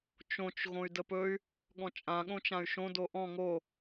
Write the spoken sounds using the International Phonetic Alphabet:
t͡ʃõt͡ʃ ɣõy̯dəpɵy̯ | ɠɔ̃t͡ʃʼã ɠõt͡ʃãy̯ʃõ doʔɔ̃ ŋo

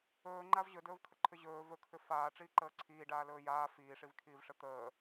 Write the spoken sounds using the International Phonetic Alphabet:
ɵːŋ͡ǃav ʑɵdɵːvkʰəǃʰʏ ʑɵː vɵkʰʏ faːʈ͡ʂiːǃəː ǀʰiːɖaːlɵː jaː fiːʂivkʰiːvʂə t̪əː

